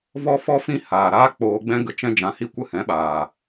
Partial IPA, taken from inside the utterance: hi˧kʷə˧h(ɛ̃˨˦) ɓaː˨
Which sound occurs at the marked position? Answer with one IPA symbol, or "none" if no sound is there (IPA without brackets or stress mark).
ɛ̃˨˦